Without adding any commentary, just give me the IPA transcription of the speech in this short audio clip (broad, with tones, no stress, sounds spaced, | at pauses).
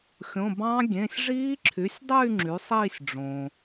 xʲ õ˩˧˩ b ɑ̃˦˥ ɡʲ ẽ˩˧˩ sʲ ʐ iː˦˥ ǁʰ y˩˥ sʲ dˤ y˥˧ ŋ͡ǁ y˩˥ sˤ iː˥˧ sʲ ɖ͡ʐ õ˩